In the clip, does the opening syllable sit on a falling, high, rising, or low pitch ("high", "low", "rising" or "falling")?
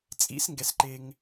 rising